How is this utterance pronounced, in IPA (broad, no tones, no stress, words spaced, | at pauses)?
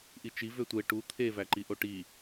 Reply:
ʔit͡ʃi vøtʷe ʈu t̪ʰe væǃiʔoʈi